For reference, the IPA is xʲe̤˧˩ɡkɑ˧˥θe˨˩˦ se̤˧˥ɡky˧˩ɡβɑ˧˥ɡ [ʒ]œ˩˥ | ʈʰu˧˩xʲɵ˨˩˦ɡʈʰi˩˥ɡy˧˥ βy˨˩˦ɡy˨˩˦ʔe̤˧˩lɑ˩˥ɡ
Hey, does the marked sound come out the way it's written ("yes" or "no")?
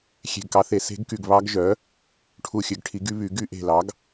yes